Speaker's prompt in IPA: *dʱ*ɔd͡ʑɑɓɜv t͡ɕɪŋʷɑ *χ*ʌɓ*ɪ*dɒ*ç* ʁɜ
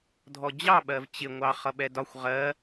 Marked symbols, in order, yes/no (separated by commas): yes, yes, no, no